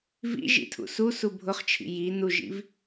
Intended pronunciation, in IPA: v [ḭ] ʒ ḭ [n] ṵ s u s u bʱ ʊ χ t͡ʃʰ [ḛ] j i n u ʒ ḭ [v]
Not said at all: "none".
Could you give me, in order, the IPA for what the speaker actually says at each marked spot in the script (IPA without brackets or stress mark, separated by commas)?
ḭ, tʰ, ḭ, v